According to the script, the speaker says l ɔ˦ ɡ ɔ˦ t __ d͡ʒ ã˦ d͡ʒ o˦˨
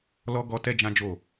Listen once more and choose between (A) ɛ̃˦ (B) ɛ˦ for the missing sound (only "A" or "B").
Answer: B